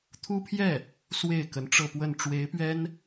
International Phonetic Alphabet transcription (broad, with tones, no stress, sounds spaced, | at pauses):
t̪ʰ u˥ pʰ j ɛ˥˩ | s w e˥˩ ɪ̯ k ə˧˥ n ʈ͡ʂ ɤ˥˧ p w ə˥˩ n ʈ͡ʂ w e˧˥ ɪ̯ p ɥ ɛ˥ n